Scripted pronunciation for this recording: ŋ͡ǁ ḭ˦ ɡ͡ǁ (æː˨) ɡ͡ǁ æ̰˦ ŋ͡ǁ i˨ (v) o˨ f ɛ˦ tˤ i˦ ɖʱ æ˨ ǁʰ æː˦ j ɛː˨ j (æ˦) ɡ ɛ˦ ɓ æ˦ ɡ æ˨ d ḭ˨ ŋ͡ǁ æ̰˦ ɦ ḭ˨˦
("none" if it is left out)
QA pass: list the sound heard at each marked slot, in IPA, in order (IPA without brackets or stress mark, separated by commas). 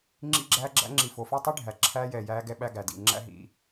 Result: æː˦, f, æː˦